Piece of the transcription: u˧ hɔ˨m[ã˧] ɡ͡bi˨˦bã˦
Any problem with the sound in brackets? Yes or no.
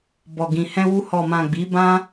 yes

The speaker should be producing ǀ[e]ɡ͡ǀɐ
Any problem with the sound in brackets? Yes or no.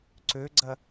yes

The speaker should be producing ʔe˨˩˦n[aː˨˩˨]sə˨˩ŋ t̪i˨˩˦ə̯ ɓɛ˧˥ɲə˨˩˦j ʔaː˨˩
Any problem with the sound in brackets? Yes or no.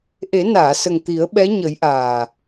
no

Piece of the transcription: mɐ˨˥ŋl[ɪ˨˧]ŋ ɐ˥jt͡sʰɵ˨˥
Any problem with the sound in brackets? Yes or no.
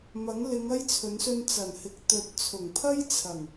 no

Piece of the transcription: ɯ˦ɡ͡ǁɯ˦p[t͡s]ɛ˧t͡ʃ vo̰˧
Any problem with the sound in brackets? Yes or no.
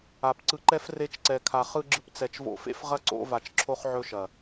no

